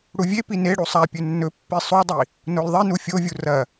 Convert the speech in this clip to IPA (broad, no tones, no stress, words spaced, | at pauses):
ɽuvʲepi neɽu sˤa pʲɵnːɵpːi sˤudˤi | nolðˤinu fʲovʲu rɐ